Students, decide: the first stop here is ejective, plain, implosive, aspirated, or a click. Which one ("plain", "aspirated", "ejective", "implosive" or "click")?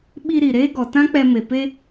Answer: implosive